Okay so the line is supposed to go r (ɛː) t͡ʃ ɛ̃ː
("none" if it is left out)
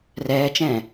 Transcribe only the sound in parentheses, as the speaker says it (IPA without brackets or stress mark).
ɛː